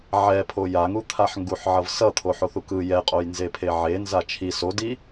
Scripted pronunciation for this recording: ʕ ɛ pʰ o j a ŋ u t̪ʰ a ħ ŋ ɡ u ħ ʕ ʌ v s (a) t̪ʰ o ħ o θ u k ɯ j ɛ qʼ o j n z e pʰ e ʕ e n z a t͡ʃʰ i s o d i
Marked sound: incorrect: ʌ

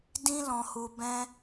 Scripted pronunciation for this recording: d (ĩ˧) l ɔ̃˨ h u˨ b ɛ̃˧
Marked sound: correct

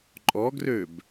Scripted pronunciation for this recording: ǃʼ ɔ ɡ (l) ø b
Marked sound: incorrect: r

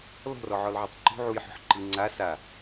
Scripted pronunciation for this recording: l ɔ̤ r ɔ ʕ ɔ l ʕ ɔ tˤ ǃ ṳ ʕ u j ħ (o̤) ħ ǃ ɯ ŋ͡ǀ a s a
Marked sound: incorrect: ɔ̤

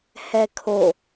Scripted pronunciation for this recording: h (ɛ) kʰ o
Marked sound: correct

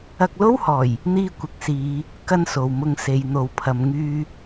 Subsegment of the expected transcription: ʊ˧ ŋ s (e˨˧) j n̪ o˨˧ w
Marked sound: correct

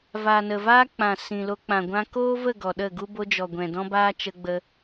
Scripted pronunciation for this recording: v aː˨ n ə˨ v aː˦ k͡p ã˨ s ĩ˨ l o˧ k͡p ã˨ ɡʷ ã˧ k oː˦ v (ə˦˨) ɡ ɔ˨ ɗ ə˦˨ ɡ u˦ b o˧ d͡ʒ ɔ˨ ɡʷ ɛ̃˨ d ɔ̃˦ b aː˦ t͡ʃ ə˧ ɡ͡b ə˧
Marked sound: correct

